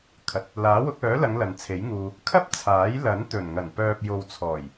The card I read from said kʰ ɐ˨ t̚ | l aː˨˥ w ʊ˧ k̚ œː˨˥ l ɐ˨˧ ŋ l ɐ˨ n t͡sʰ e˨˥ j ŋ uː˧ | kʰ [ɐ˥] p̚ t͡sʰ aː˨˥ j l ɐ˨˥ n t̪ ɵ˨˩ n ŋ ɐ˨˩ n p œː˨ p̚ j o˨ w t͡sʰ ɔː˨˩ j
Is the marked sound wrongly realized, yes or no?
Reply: no